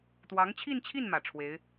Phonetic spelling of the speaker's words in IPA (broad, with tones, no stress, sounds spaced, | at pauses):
t̪ w ɑ˧˥ ŋ t͡ɕʰ i˥˧ n t͡ɕʰ i˥˩ n m ä˨˩ ʈ͡ʂʰ w e˧˥ ɪ̯